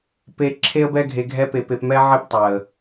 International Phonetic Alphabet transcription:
pe˧ ǁʰe˦ə̯bɛ˦ ɡʱe˧ɡʱɛ˦pe˧ pe˧pmɛ˦ ʕe˦ptˤɛ˨ə̯

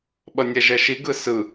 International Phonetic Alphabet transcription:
ɓʌnʲɛʒɛʃi ɡɯsɯ

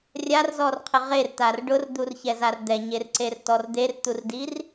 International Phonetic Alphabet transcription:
rʲarzɔrqʰɪ ʁert̪ar ɖʊrd̪urçɛzar d̪ɛɲerǀertɔr d̪ert̪urdir

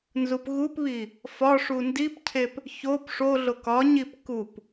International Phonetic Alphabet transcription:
nzupɣupβi | fɒʂu ndipcʰep | çop ʂoɮo kɒɲip kup

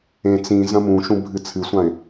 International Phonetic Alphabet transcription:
ẽ t͡sĩ zɐ̃mũʃũ bʱɨt͡sʰɨsʷãɪ̯

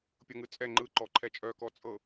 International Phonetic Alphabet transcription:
pʲɤŋɯt͡sʼɛ ŋ͡ǃɯǃɔ ǃʰɛt͡ʃʼœkɔ t͡sʼɤ

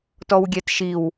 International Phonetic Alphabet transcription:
tɔwɡʲɛtʃiw

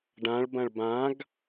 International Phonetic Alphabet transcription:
ɖãɭbɐ̃ɭ bãɡ

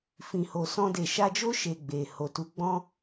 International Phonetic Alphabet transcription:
fĩ˨ho˨sɔ̃˧de˨ ʃa˧d͡ʒo˦ ʃe˧ ɡ͡be˨ ho˨tu˨˦ɡ͡bɔ̃˦

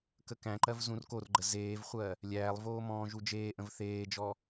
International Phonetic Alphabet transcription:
kəkæ̃ǃɜv zũrkorɡ͡ǃə zeːvχʷɜ | lʲæːlˠvoː mɔ̃ːʒud͡ʒeːʔə̃v θeːd͡ʒɔ

